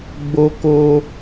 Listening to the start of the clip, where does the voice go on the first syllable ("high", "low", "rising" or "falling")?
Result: high